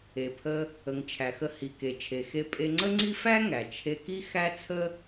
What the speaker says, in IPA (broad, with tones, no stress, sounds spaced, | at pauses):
e˩ pʰ ə˧ | ə˩ ŋ t͡ʃʰ æ˩ x ə˧ h i˩ k e˩ t͡ʃʰ e˩ x e˧ pʼ e˧ ŋ͡ǀ ə˥ ŋ͡ǀ i˥ f æ˥ ŋ æ˩ t͡ʃʰ e˧ k i˥ x æ˥ t͡sʰ ə˥